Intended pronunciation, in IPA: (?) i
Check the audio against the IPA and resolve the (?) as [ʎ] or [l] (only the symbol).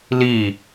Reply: l